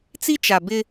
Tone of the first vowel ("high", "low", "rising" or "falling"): high